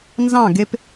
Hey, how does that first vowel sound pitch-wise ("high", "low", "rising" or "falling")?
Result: falling